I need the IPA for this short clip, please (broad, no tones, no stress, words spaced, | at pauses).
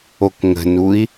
okŋə̤nui̯